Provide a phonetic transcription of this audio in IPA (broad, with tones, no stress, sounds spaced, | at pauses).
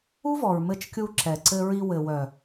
u˦ v ɔ˨ ɹ m ɘ˧ t͡ʃ kʲ u˧ ǁ ɛ˨ ǀ ɘ˧ ɹ i˧ w ɘ˨ w œ˨